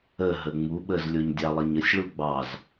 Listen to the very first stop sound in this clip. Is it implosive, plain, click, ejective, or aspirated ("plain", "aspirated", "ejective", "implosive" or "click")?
implosive